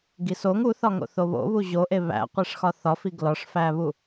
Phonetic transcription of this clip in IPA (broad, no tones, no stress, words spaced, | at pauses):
ɡisoŋ uθɒ ŋo̰θoβo̰ βuʑoʔe βæ̰ qʷeʂxɒθɒfi ɡlɒʂfæβu